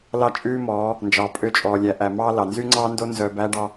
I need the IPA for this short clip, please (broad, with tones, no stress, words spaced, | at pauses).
lɑ˦t͡ʃʼʉː˦mɔː˨˦ | nd͡ʒɑː˨pʼø˦t͡ʃʼɔː˨ lʲæ˨ʔæ˨mɑː˦ lɑ˨ nzy˦ŋ͡ǀɑː˦ndo˦ nzœː˦ bæː˦ɖɑ˦